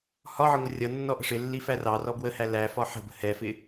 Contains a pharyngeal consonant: yes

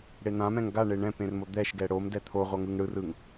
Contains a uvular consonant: yes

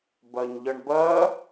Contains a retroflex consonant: yes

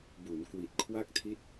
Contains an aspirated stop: yes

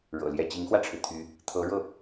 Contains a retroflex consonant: yes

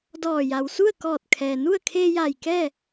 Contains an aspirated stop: yes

